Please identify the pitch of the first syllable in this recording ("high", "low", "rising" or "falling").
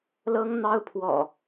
high